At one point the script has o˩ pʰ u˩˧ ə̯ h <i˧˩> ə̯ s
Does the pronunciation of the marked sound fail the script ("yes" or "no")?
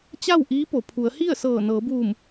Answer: yes